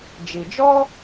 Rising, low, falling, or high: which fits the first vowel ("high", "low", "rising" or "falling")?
low